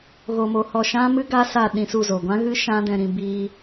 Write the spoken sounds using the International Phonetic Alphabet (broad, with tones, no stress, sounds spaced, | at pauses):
ɣ o˧ m o˧ h ɔ˧ ʃ ã˦ m ɨ˦ ɡ a˦ s a˦˨ ɗ ĩ˧ s u˦˨ z o˨ ɡʷ ã˦ ɣ ɨ˦ ʃ ã˦ d ɛ̃˧ ɾ ĩ˧ b iː˧